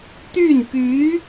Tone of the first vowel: falling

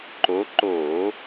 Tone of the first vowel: rising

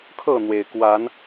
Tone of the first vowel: falling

